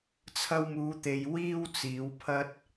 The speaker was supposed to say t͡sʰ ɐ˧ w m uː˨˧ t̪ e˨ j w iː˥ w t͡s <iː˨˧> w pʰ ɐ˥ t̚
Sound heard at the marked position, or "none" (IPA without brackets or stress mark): iː˨˧